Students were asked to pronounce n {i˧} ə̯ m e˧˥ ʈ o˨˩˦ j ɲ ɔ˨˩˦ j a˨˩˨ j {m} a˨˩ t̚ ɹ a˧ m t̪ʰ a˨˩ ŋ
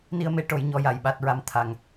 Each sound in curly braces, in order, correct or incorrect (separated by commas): correct, incorrect